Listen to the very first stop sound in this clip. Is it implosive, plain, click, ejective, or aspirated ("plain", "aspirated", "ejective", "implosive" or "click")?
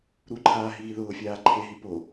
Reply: click